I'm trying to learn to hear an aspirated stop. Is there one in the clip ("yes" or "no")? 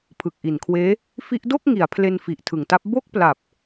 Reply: yes